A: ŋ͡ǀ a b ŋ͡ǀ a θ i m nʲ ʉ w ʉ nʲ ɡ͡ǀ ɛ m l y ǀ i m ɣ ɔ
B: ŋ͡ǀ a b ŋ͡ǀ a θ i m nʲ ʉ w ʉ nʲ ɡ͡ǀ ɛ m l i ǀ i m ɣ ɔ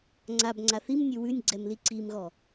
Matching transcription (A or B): B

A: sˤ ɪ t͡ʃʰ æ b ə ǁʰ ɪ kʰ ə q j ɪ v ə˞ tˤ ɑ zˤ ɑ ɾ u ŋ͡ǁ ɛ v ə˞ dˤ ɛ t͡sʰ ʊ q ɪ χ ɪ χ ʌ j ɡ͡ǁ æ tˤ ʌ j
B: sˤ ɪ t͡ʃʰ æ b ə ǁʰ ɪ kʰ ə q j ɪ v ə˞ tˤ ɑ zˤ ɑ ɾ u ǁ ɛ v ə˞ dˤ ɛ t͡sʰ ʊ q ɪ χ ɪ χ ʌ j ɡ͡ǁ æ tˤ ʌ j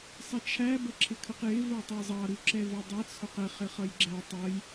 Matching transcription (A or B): B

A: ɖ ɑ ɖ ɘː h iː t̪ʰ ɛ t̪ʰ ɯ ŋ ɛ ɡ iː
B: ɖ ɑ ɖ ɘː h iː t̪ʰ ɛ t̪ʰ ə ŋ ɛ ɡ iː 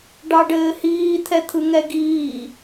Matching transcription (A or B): A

